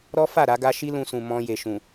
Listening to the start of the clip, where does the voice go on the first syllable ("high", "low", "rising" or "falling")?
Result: high